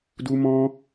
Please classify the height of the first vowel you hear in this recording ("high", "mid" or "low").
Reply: high